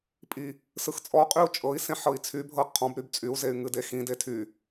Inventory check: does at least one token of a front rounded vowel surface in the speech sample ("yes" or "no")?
yes